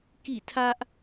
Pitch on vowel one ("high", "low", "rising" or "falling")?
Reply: falling